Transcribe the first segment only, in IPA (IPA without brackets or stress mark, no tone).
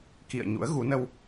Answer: k